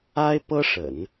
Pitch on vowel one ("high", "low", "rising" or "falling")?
high